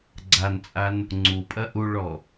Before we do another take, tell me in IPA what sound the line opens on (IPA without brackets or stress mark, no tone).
ɡ͡ǀ